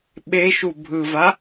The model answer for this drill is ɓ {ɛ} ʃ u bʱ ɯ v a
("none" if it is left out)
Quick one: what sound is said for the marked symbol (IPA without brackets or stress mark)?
e